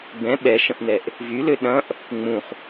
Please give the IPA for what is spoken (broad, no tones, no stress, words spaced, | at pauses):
bɛ̃ ɓɛʃə̃ʔn̪ɛʔ | vylø ɗɐ̃ʔ | ŋ͡mũχ